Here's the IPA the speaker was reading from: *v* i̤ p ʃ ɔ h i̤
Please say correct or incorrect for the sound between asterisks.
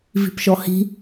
correct